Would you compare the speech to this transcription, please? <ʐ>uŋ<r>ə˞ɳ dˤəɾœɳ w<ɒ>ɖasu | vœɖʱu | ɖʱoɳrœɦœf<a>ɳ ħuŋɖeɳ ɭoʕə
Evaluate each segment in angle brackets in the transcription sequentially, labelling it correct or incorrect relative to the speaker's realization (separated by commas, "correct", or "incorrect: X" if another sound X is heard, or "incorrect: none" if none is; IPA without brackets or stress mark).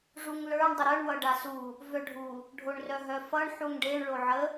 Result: correct, incorrect: l, incorrect: ʌ, incorrect: ʌ